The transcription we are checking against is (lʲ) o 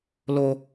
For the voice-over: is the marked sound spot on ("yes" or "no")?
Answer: no